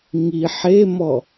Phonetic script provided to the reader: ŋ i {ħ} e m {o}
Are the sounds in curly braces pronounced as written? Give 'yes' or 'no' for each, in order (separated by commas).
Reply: yes, no